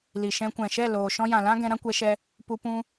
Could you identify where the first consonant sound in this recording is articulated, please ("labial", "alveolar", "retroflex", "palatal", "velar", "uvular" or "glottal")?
alveolar